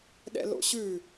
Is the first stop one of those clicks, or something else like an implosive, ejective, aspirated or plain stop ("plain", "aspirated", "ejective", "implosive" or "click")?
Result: implosive